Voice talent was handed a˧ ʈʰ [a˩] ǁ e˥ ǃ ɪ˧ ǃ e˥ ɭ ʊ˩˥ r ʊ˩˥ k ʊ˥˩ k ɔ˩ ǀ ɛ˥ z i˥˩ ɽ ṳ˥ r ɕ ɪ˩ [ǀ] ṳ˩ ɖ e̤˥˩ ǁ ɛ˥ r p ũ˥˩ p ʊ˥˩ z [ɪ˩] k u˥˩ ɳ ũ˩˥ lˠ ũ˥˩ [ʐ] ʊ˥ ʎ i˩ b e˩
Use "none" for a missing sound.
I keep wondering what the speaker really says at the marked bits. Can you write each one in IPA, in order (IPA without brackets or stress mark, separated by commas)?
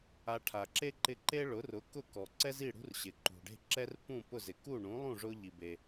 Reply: a˩, ǃ, ɪ˩, ʐ